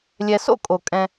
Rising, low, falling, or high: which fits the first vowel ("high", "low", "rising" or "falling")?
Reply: low